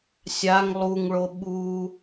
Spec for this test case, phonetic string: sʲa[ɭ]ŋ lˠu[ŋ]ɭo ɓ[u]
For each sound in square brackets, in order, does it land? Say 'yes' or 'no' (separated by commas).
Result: no, yes, yes